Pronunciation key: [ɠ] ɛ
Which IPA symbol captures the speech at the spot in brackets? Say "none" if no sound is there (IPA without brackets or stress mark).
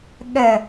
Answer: ɠ